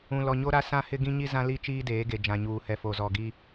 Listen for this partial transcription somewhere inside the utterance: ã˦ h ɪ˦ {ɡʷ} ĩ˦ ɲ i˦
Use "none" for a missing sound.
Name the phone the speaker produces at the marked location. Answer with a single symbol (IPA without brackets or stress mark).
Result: ɡ